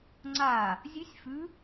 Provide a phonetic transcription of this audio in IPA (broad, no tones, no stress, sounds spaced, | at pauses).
ŋ͡ǀ a | zʲ ʉ sʲ f ʉ